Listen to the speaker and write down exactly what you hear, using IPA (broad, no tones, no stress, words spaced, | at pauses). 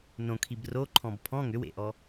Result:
nõkʰib roǃʰɔ̃b pʰɔ̃ ŋʏwḛʔɔ